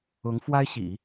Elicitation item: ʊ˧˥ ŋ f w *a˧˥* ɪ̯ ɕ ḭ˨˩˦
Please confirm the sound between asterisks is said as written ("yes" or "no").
no